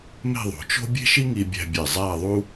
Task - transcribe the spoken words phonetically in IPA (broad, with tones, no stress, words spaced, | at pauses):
me̤˥˧ðˤo̤˩˧t͡ʃo̤˥ bʲe̤˥ʃi˥ŋi˧bʲæ̤˧ bʲe˧˩zˤæ˥˧ðˤu˥